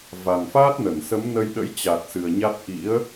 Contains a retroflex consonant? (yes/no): no